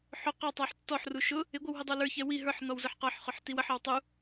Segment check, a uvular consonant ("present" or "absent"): present